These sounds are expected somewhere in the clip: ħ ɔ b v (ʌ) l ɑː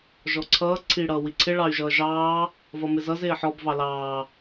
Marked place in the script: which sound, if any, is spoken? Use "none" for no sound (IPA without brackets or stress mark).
ɑ